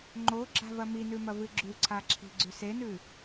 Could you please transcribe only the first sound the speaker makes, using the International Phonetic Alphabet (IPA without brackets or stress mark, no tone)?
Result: ŋ͡ǃ